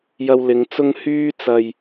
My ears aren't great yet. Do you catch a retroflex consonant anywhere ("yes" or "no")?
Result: no